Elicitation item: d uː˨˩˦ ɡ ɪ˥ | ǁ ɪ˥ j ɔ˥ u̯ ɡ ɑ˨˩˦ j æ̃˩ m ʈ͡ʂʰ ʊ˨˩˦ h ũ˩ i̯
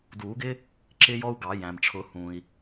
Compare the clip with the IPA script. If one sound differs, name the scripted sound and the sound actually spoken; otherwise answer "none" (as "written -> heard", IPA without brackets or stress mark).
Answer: none